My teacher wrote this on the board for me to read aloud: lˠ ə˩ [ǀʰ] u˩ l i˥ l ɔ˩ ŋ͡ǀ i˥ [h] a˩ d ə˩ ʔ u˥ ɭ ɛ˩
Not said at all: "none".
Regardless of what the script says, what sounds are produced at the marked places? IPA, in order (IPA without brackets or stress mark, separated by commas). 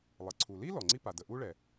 ǀʰ, p